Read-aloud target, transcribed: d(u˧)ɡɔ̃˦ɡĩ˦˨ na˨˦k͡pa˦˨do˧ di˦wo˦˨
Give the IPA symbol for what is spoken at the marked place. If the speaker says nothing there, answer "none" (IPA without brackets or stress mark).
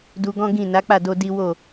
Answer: u˧